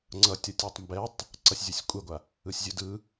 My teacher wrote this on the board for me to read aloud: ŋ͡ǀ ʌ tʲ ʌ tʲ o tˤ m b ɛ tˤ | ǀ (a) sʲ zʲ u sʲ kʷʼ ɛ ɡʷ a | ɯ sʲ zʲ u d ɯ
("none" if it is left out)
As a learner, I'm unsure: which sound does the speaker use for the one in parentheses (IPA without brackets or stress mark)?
ʌ